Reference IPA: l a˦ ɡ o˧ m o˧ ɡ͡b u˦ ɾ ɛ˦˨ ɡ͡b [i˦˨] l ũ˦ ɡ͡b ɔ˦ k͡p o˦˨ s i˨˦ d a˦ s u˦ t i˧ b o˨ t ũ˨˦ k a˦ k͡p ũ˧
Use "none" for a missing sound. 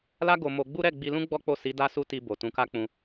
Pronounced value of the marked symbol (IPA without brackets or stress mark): i˧